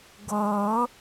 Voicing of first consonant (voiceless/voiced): voiced